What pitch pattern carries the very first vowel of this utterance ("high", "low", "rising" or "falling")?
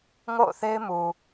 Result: falling